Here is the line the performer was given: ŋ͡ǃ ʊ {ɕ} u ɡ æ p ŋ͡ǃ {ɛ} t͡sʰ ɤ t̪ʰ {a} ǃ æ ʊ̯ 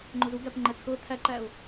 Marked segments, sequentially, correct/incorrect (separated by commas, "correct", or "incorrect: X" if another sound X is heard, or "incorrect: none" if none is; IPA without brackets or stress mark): incorrect: z, correct, incorrect: æ